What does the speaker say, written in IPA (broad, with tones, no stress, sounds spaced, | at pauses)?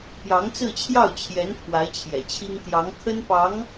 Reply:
p j ɑ˧˥ ŋ t͡s ɹ̩˥˧ t͡ɕʰ j ɑ˥˩ ʊ̯ t͡ɕʰ j ɛ˧˥ n pʰ w a˧˥ ɪ̯ t͡ɕʰ j ɛ̰˨˩ t͡ɕʰ i˥ ŋ t̪ j ɑ˧˥ ŋ kʰ ə˥ n p ɑ˧˥ ŋ